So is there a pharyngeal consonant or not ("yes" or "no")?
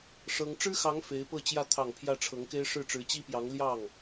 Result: no